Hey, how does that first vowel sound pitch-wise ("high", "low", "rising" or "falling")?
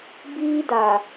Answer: high